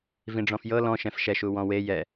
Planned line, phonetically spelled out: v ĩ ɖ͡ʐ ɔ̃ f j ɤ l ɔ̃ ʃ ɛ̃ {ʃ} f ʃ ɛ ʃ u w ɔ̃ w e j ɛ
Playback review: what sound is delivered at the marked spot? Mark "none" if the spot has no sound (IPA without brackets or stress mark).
none